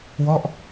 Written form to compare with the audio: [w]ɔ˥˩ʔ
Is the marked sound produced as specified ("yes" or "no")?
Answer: yes